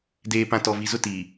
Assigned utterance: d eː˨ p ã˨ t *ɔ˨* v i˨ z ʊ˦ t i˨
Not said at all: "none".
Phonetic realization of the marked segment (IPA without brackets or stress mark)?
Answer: ɔ˨